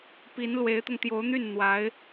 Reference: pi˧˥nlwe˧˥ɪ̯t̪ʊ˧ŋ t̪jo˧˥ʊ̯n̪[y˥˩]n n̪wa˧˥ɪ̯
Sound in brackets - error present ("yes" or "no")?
no